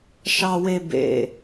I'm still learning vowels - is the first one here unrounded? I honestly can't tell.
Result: yes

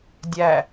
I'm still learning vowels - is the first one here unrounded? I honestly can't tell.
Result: yes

